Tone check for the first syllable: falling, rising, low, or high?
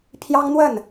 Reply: high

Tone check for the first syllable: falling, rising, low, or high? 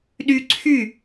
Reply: high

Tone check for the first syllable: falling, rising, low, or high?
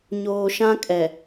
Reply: low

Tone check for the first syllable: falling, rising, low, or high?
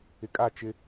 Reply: low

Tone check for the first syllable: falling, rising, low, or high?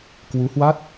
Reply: rising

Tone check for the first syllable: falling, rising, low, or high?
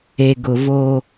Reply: low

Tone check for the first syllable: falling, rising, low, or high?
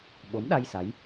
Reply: rising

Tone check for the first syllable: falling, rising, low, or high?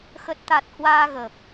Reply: low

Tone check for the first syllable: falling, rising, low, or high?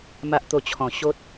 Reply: high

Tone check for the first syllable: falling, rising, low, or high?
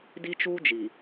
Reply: high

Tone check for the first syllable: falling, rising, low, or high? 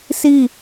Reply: falling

